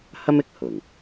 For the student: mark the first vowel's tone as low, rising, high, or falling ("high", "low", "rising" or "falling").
high